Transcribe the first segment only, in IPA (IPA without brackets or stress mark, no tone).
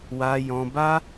w